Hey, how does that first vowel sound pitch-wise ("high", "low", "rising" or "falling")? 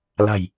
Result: low